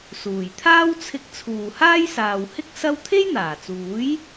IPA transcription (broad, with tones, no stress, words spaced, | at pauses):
suː˨˩jt̪ʰaː˥wt͡sʰɪ˧k̚ t͡sʰuː˨haː˥jsaː˨whɪ˥k̚ sɐ˥w t̪ʰe˥jn̪aː˨˩t͡suː˨˥j